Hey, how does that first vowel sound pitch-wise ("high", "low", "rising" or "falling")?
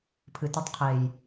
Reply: low